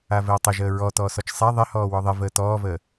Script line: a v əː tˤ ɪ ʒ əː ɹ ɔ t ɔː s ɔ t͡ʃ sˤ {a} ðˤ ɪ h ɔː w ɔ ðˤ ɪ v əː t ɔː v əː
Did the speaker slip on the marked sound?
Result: no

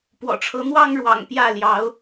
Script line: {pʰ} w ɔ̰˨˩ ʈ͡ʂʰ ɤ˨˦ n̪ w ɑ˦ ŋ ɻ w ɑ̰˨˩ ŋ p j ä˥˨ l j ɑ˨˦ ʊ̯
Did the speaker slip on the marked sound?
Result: yes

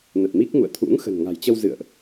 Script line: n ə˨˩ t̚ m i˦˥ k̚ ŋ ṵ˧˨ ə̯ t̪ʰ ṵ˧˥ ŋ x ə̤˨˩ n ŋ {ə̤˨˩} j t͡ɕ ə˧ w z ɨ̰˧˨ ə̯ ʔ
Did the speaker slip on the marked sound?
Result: yes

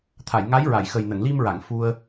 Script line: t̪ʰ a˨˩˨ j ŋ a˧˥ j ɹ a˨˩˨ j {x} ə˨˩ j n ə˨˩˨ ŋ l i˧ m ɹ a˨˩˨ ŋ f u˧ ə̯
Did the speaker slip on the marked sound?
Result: no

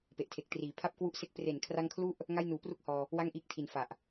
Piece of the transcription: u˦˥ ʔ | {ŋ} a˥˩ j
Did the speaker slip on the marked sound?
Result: no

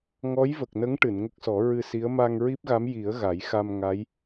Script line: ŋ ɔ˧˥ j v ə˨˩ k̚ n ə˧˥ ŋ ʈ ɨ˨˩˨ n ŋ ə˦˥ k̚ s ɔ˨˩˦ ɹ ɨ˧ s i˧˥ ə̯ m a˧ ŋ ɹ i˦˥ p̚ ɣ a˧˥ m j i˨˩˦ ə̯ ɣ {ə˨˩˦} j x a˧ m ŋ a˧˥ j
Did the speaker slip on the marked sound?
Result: yes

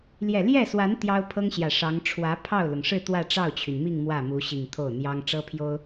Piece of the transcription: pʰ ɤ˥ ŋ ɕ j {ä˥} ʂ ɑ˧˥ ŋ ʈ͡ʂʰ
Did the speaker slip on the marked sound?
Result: yes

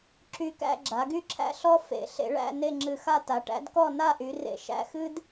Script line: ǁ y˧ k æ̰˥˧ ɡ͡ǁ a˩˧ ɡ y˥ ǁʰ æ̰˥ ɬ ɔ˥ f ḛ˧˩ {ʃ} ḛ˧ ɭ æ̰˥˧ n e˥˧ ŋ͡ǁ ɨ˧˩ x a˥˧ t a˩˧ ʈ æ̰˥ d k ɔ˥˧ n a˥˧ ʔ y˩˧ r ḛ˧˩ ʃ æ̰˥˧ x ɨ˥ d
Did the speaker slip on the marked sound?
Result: yes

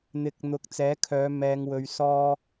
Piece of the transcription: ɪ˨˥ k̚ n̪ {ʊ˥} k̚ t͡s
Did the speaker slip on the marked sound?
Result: yes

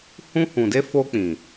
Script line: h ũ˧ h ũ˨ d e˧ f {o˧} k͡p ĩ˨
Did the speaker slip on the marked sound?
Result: no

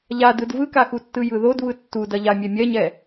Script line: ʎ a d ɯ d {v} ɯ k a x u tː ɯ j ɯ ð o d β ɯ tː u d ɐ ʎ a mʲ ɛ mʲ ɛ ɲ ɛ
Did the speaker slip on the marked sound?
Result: no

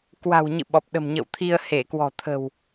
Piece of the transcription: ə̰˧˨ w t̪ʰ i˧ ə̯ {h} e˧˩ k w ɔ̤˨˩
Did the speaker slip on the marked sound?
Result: no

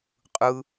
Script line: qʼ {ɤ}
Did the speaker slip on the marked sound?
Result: yes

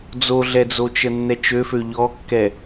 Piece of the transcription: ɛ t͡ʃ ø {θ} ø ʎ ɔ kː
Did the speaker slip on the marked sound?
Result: yes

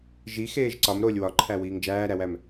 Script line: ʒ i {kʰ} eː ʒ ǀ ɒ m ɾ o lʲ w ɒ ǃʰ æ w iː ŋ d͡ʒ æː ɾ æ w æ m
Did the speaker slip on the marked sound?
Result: yes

